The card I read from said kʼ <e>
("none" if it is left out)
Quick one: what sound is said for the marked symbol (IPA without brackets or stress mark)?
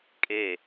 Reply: e